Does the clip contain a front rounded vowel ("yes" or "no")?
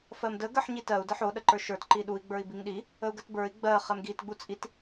no